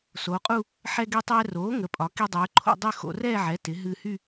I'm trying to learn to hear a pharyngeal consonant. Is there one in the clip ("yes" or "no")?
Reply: yes